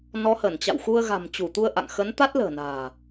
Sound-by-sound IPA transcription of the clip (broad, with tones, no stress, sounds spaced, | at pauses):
n ɔ˨˦ h ə˧˩ n t͡ɕ a̰˧˨ w x u˧ ə̯ ɣ a̤˨˩ m t͡ɕ u˧˩ t̪ u˧ ə̯ ʔ a̰˧˨ ŋ x ə˨˦ n t̪ a˦˥ t̚ l ə̤ː˨˩ n a̤ː˨˩